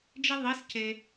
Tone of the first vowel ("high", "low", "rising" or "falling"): high